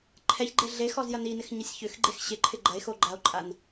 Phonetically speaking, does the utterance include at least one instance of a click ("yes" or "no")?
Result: yes